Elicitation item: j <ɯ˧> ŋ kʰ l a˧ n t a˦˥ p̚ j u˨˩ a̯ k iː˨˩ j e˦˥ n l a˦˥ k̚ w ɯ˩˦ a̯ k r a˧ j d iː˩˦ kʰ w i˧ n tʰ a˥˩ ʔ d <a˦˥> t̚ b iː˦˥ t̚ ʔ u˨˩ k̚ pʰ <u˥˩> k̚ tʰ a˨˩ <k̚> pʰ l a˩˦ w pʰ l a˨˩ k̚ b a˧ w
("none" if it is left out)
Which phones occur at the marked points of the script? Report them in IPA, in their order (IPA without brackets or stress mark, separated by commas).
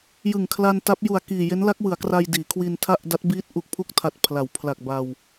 ɯ˨˩, a˦˥, u˥˩, t̚